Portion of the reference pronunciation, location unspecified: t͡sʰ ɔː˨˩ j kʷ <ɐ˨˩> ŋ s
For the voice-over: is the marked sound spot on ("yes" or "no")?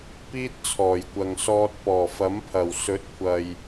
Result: no